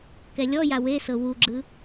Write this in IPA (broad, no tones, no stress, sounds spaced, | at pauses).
k ɛ lʲ ɔ j a w e s ɤ w u ɡ͡ǁ ɯ